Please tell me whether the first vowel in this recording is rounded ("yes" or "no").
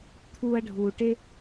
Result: yes